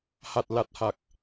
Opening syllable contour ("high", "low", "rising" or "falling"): low